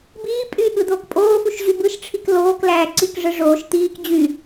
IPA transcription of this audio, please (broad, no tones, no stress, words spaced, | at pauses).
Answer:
biː pʼy ɠɯd̪oːkpʼoːfuʃ ʑybɯʃʈ͡ʂʰik loːklæː ǀikʐɯ ʐoːʃ t̪iːk d͡ʑy